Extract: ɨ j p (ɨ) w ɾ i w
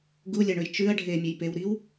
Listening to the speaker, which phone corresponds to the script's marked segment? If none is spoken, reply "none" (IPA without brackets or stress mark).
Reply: e